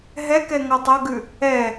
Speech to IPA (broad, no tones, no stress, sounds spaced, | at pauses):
ɦ ɛ k ɛ ŋ ɔ tˤ ʌ ɡ ʉ | ɛ